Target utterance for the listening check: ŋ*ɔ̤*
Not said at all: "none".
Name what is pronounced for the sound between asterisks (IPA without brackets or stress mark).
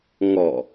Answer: ɔ